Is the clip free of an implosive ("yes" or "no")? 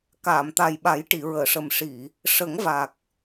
no